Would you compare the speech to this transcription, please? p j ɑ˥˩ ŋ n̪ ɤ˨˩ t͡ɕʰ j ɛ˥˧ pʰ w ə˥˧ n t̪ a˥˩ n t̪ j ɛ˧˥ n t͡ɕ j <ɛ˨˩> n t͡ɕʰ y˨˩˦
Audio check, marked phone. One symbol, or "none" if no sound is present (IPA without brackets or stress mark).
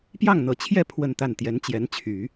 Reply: ɛ˧˥